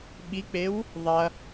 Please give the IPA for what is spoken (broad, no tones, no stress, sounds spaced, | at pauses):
ɓ i k͡p e w | ðˤ ɐ